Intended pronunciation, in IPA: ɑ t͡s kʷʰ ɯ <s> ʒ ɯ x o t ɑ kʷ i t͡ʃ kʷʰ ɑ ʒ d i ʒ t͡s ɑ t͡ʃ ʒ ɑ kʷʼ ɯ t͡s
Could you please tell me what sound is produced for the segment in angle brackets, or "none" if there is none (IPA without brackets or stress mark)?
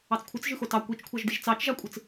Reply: t͡s